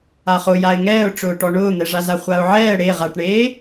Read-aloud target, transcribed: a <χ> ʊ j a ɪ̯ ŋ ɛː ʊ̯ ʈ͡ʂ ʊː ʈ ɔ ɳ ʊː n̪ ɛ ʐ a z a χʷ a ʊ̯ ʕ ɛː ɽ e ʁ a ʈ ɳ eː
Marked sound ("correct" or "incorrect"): correct